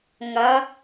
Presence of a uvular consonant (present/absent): absent